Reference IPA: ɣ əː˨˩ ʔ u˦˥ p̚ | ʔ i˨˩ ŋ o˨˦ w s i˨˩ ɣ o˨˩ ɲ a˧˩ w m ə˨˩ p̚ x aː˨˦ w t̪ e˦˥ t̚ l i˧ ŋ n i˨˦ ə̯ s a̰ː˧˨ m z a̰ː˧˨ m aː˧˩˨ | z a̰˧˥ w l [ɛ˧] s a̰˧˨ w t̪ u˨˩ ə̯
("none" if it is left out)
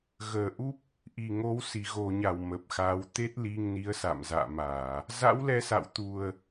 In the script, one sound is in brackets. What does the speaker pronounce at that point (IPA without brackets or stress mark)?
ɛ˧